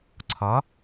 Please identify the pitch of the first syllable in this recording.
rising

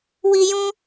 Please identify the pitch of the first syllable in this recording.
low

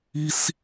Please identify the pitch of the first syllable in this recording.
high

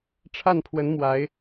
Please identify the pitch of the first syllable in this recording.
falling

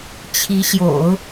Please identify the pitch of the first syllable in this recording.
rising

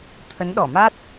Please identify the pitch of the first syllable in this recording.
rising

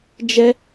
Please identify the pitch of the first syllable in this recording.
high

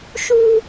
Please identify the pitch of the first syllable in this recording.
high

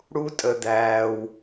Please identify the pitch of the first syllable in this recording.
high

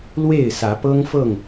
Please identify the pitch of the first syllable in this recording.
falling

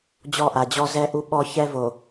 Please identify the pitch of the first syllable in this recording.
falling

